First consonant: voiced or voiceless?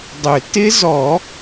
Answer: voiced